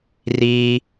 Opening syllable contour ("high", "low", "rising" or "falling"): low